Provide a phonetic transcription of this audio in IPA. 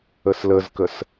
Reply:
əsləzkəs

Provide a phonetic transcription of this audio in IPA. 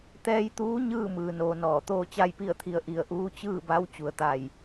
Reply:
t̪ɛː˧jt̪uː˧˥ ɲɯː˥˨ mɯː˩noː˩ nɔː˧˩ t̪oː˥˨t͡ɕa˥˨jpi˥˨ə̯t̪ʰi˧ə̯ ʔi˧˩ə̯ʔuː˧˥ t͡ɕɯː˥˨ba˧˥w t͡ɕu˩˧ə̯t̪a˧˩j

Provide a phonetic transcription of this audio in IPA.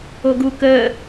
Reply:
oɡu kəː

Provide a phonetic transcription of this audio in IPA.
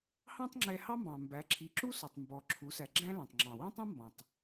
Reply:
hɑ̃˥tˤŋ͡ǁɛ˧hɑ˥mbɑ̃˩ mbæ˩˧ǁʰi˩˧ǁu˥ sɔ˩tˤmbɔ˩ǁʰu˩˧sæ˩ ɡ͡ǁæ̃˥læ̃˩tˤŋ͡ǁɑ̃˩ wɑ̃˥tˤɑ̃˥mbɔ̃˩tˤ

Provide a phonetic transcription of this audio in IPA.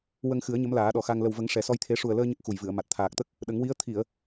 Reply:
wə˧ŋxɨ˨˩˦ə̯ ɲə˧˥mlaː˨˩˦ɗɔ˨˩xa˧ŋ lə˨˩wvə˨˩˦ŋ ʂɛ˨˩˦sɔ˧jt̪ʰe˧˥ ʂu˨˩ə̯ləː˧ ɲə˦˥k̚xu˨˩jvɨ˨˩˨ə̯ma˨˩t̚ t̪ʰaː˨˩k̚t̪ə˦˥k̚ | ɗə˨˩˦ŋwi˧˥ə̯ t̪ʰi˨˩˨ə̯

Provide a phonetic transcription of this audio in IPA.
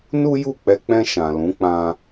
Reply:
nu˦ju˦˨k͡pɛ˧k͡pɛ̃˧ ʃã˨lũ˨˦k͡pã˧

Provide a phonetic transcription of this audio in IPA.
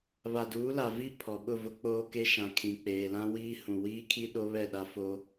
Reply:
βa˨duː˨˦la˨vi˦˨ pʰɔ˨ ɓʊ˦˨vʊ˦ k͡poː˦ke˦ʃã˨ kʰĩ˨k͡peː˨lã˦wiː˦ hũ˨wiː˦kʰi˦ ɗo˦βɛ˦˨ɗa˦fo˦

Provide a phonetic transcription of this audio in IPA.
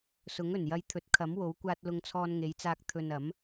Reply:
sʊ˨˥ŋɵ˨˩njɐ˧jt̪ʰɵ˨˥t̚ kʰɐ˨˥mwo˨˥wkʷaː˧t̚ lʊ˧ŋt͡sʰɔː˧nŋe˨˧jt͡saː˧k̚ t̪ʰɵ˨n ɐ˨˥m

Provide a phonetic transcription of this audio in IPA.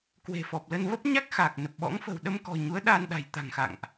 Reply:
kwe̤˨˩fɔ˨˩p̚lə˧n və˦˥p̚ɲa˦˥k̚ xaː˨˩k̚nə˨˩p̚ɓɔ̰˧˥ŋfə̤˨˩w ɗə˧mkɔ̤˨˩ ɲu˨˦ə̯ ɗaː˧nɗa̤˨˩j t̪a̤˨˩ŋxa̰˧˨ŋʔ

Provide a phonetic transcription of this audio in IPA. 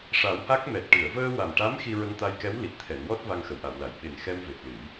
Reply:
ʂa˨˩˦wha˦˥k̚mɛ˨˩t̚ ʈɨ˨˩˨ə̯vəː˧wa˨˩mʈa˧˥m xi˧ɹə˧ŋt̪a˧jkɛ˧˥w li˨˩t̚t̪ʰɛ˨˩˨nwɔ˦˥t̚ va˧ŋxə˨˩˨wʔa˨˩˨wla˨˩˨j ɓe˨˩n xɛ˧mve˨˩p̚ lɨ˨˩˦j

